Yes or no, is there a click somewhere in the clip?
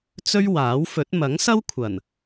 no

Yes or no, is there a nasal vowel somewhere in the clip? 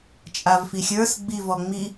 no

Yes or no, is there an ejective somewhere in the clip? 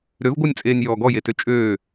yes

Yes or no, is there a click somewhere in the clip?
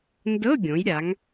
no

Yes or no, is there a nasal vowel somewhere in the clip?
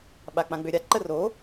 yes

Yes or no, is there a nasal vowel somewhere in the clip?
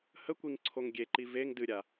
no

